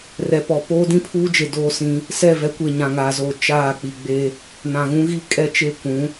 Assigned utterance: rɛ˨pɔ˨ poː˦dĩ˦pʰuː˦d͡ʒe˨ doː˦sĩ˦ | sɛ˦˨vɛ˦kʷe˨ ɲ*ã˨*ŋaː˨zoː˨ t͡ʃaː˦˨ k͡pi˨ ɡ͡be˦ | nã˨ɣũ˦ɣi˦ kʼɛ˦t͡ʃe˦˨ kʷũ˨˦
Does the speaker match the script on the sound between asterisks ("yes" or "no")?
yes